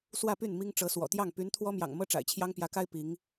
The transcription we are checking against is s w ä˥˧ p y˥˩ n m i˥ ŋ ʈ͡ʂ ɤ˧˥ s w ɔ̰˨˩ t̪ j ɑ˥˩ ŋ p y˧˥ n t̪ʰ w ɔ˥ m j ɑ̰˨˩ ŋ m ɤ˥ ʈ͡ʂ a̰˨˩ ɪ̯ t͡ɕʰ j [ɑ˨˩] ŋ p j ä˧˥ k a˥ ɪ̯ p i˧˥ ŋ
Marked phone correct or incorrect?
incorrect